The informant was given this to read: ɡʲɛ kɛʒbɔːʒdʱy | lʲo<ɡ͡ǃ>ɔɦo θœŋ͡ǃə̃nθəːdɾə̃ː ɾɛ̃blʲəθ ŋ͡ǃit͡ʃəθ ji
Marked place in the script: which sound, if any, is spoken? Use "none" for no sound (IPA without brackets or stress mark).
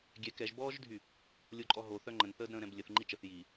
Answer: ǃʼ